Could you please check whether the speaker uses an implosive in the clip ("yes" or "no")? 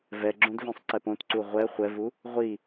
no